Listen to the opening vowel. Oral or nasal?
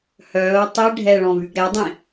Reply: oral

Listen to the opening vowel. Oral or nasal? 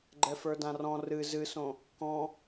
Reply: oral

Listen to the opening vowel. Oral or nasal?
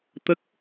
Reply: oral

